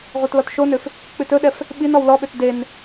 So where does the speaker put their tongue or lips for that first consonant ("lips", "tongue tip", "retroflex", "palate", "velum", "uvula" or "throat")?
uvula